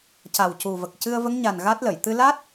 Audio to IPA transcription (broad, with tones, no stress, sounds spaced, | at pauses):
c a˨˩ w c u˨˩ v ə˨˩ k̚ c ɨ˧ ə̯ v ə˧˥ ŋ ɲ a˨˩ n ɣ a˦˥ t̚ l ə˨˩˨ j t̪ ɨ˧ l a˦˥ t̚